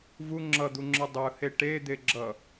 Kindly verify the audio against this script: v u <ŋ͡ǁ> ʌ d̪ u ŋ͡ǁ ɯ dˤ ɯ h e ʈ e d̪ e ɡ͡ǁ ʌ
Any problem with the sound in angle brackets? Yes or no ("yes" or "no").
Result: no